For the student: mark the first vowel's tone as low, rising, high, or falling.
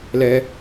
high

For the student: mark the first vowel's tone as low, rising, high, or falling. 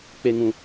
high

